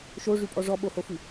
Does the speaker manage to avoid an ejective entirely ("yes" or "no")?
no